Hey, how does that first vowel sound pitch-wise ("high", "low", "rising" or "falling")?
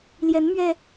rising